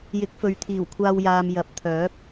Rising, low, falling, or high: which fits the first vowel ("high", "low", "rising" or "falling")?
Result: rising